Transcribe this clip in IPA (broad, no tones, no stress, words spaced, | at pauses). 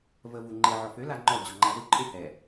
vəvuŋ͡ǃe ʕɔfø laŋ͡ǃɔ d͡ʑɔŋ͡ǃazu ǃʼehɛ